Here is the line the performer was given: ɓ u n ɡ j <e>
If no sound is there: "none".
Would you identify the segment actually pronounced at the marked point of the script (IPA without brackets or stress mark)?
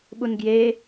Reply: e